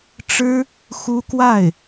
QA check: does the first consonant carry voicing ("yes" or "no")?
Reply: no